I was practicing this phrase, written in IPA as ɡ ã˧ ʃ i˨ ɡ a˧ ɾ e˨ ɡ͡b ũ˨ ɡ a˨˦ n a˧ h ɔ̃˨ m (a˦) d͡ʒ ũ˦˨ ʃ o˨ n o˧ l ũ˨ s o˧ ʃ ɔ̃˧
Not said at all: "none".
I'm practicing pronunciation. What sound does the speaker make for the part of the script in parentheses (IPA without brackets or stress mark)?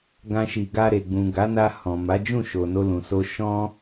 a˨˦